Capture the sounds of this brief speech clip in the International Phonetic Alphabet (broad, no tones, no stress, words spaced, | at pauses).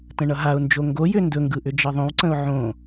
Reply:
tə̃ɳʌɦaʊ̯nd͡ʒo ŋɡojʏ ndɵŋɡɯ ʔʏd͡ʒʌðˤõwǀə̃ʊ̯ ʕõ